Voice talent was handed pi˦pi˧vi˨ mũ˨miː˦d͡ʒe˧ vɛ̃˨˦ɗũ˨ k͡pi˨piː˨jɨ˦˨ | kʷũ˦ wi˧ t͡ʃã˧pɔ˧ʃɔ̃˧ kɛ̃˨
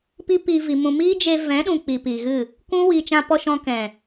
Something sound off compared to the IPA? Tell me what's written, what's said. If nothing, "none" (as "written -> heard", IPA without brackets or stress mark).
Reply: j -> ɣ